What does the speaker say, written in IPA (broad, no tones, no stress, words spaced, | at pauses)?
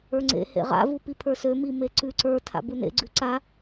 ə˞ŋ͡ǀḛ hḛʁa̰ vupipʰə˞sø mimeǀʉ ǀə˞ tʰa̰bunḛ ɡ͡ǀʉǀa